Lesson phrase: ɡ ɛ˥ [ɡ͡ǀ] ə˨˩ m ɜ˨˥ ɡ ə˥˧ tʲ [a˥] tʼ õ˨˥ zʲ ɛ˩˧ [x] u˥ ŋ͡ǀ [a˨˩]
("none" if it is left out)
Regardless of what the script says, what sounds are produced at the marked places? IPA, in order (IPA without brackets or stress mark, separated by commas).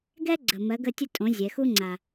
ɡ͡ǀ, ə˥, x, a˨˩